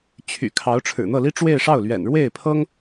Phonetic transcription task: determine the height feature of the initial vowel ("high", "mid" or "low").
high